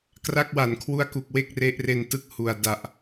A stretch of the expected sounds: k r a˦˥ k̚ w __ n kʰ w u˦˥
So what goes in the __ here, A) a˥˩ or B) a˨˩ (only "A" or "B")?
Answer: B